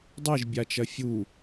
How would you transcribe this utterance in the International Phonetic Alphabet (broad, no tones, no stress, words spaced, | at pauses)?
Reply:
dˤeʒbʲat͡ʃɐ fʲu